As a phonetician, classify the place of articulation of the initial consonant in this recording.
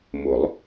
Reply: labial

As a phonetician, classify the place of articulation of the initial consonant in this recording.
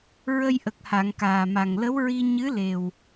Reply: alveolar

